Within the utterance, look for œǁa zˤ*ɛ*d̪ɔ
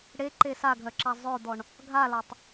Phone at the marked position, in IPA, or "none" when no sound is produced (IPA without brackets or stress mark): œ